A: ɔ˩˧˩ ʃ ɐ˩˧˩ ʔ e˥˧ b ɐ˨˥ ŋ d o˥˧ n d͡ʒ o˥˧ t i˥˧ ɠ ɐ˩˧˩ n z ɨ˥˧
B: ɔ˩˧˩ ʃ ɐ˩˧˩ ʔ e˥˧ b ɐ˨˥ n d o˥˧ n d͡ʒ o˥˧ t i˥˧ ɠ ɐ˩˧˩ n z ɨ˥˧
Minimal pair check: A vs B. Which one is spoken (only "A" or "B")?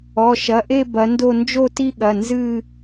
B